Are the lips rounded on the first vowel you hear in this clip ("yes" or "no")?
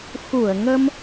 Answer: yes